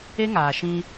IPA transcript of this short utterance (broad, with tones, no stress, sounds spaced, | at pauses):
e˦ ŋ aː˨ ʃ ĩ˧